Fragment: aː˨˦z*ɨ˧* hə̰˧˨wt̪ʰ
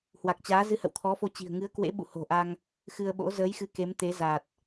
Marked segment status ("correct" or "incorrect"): correct